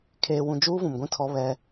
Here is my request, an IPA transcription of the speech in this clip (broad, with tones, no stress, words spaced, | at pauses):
kʰeː˨wũ˨ d͡ʒuː˦vũ˨mɡʷĩ˦ tʰɔ˦βɛ˦